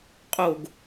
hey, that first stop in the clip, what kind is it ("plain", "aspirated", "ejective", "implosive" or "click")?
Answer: ejective